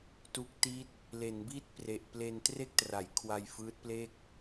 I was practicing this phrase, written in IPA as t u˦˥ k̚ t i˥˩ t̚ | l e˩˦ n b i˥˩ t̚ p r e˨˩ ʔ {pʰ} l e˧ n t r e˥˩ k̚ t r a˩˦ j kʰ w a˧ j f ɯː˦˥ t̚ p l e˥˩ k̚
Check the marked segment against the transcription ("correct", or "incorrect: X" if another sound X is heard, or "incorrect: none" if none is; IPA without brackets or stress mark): incorrect: p